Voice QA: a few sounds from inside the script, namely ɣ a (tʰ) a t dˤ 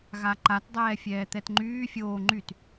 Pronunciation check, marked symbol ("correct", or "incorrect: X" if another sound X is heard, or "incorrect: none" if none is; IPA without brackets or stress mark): incorrect: ǃ